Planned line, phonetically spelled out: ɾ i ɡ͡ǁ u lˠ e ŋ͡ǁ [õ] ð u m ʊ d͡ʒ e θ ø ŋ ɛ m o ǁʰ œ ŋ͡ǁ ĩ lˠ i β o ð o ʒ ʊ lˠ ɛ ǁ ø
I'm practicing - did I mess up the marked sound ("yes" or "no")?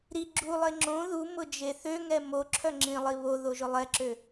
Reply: no